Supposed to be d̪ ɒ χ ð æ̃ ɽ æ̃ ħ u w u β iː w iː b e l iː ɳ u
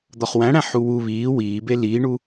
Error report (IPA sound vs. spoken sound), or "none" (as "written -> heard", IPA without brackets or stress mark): ð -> w